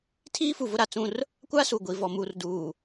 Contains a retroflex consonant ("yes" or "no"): no